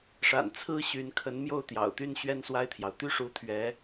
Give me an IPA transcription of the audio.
ʂ a̰˨˩ n t͡sʰ ɹ̩˥ ɕ y˧˥ n kʰ ə˧˥ n m j o˥˩ ʊ̯ t̪ j ɑ̰˨˩ ʊ̯ t̪ y˥˧ n ɕ ɥ ɛ˥˧ n s w a˥˩ ɪ̯ t̪ʰ j ɑ˩ ʊ̯ t̪ y˥ ʂ u˧˥ t̪ʰ ɥ ɛ˧˥

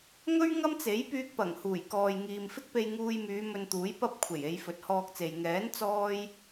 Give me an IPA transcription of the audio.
ŋ ɵ˥ ɥ ŋ ɐ˥ m t͡s e˨˥ j p yː˧ k̚ p ɐ˨˩ ŋ h uː˨˩ j k ɔː˨ j ŋ iː˨ m f ɪ˥ k̚ p e˧ j ŋ uː˧ j m yː˨˧ m ɵ˧ n t̪ uː˨˥ j p ɐ˥ p̚ kʷʰ e˨˩ j e˨˧ j f ɵ˨˥ t̚ h ɔː˧ k̚ t͡s e˨ j ŋ ɛː˨˥ n t͡s ɔː˥ j

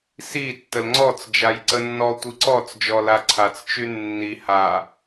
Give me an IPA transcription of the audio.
s i tː ə l ŋ͡ǀ ɔ t͡s d͡ʒ a j ǀ ə nː ɔ tʷ i ǀ ɔ t͡s d͡ʒ ɔ l a ǀʰ a t͡s t͡ʃ y nː i h a

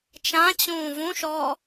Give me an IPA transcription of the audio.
t͡ʃ ã t͡ɕ ũː v ũ ʃ ɔː

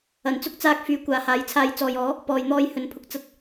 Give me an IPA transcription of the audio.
ɐ˨˩ n t͡s ʊ˥ k̚ t͡s aː˧ k̚ f yː˨˥ kʷ aː˨˥ h aː˨˥ j t͡sʰ aː˧ j t͡s ɔː˨ j ɔː˨˥ | p ɔː˨ j n̪ ɔː˧ j h ɵ˨ n pʰ ʊ˨˥ k̚ t͡s ɐ˧ t̚

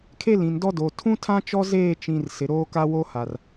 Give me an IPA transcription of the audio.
kʰ e˦ l ĩ˨ n d ɔ˦ d o˨ tʰ ũ˦ tʰ ã˦ t͡ʃ ɔ˦ z eː˦˨ t͡ʃ ĩ˨ r s ɪ˨ ɾ oː˦ k a˦ w o˦ h a˨ r

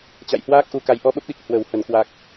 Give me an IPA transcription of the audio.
t͡ɕ a̰˧˨ j h w aː˦˥ k̚ ʔ u˧ k a˨˦ j ʔ ɔ˧ ɓ ə˦˥ p̚ ɗ i˨˩ k̚ h w ə˧˩ w h ə˧˩ n k w a˨˩ k̚

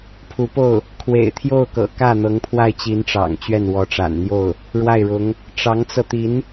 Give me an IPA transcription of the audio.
pʰ u˧˥ p o˥˩ ʊ̯ | kʰ w ḛ˨˩ ɪ̯ t̪ʰ j o˥˩ ʊ̯ k ɤ̰˨˩ k ä˥˩ n̪ ɤ˧˥ ŋ pʰ w a˥˩ ɪ̯ t͡ɕ i˧˥ n ʈ͡ʂ ɑ̰˨˩ ŋ t͡ɕ ɥ ɛ˥˩ n w ɔ˧˥ ʈ͡ʂ a̰˨˩ n n̪ j o˥˩ ʊ̯ | ɻ w a˥˩ ɪ̯ ɻ ʊ˧˥ ŋ | ʈ͡ʂ ɑ˧˥ ŋ t͡s ɤ˧ t̪ i˧˥ n

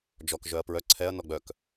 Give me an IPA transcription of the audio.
d͡ʒ ɔ k ʒ œ ɐ̯ p ɹ œ ǀʰ ɛ ɐ̯ n ɔ ɡ͡b œ k

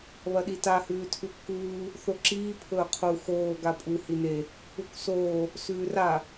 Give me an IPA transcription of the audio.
β ɐ ɗ i t a h ʉː tʰ ʉ kː uː | θ o ǁ iː pʰ ɵː qʰ u x oː ɡ a pʼ u h i n e | u k s oː | s ʉː r a

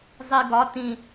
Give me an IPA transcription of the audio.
zˤ i ɡ ɒ t ĩ

